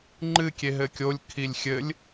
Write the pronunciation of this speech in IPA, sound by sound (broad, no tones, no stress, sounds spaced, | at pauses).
ŋ͡ǃ ɨ kʲ e ɦ ɘ kʲ o lʲ kʰ i lʲ xʲ ɘ lʲ